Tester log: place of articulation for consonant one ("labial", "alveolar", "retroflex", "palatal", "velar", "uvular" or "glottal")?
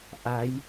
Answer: glottal